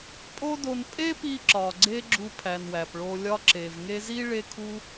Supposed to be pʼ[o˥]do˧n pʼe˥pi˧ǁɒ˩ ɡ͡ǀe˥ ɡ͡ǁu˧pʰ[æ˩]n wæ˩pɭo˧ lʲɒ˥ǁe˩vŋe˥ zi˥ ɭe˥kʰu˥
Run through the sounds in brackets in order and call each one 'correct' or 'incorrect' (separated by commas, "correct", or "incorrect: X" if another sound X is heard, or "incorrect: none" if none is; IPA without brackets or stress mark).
correct, correct